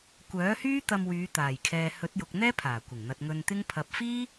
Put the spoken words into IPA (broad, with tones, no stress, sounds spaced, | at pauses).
kʷ œː˨˥ h yː˥ t̪ ɐ˧ m w yː˨˧ t̪ aː˨˩ j kʰ ɛː˨ h ɵ˨˥ t̚ j ʊ˨ k̚ n̪ ɛː˥ pʰ aː˨˩ kʷ ɪ˨˩ ŋ n̪ ɐ˨ t̚ ŋ ɵ˧ n t̪ ɪ˥ ŋ pʰ ɐ˨ p̚ f iː˥